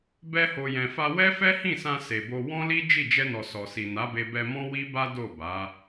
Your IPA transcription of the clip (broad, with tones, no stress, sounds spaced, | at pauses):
b ɛ˧ h o˨ j ɛ̃˨ f a˧ w ɛ˦ f ɛ˦ h ĩ˦˨ s ã˧ s e˨ b o˧ w ɔ̃˦ l i˦ d͡ʒ i˦˨ d͡ʒ ɛ˧ n ɔ˨ s ɔ˨ s i˨ n a˨˦ b e˧ b ɛ˧ m ɔ̃˦ w i˦ b a˦ d o˦˨ b a˨˦